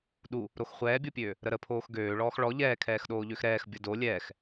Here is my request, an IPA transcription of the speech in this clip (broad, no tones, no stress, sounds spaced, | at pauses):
ɗ u | ɾ o x χʷ ɛː bʲ o pʲ øː | ɾ ə ɾ ə pʰ oː x ɡ øː ɭ ɔː x ɭ ɔ ʎ ɛː kʰ ɛː x ɗ oː ʎ ø x ɾ ɛː x bʲ ʌ d o lʲ ɛː x